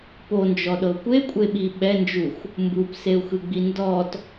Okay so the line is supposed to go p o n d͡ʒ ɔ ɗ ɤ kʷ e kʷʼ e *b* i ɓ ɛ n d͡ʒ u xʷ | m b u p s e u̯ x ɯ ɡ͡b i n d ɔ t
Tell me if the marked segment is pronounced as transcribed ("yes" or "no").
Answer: no